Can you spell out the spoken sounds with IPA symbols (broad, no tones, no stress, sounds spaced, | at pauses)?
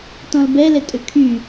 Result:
t ɔ̃ l b ɛ l ɛ tʼ ʏ kʰ y